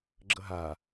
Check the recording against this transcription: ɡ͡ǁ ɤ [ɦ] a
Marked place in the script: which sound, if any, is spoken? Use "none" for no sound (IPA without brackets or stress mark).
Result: ɦ